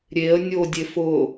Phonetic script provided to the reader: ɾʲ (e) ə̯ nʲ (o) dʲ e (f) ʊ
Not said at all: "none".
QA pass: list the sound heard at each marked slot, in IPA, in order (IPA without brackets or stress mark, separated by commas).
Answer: e, o, f